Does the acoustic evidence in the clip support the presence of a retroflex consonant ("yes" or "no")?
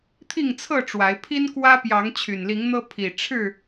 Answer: yes